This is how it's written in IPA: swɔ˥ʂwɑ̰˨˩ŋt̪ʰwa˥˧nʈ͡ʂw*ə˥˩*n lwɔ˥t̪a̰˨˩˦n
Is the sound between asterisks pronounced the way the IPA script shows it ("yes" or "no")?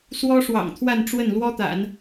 yes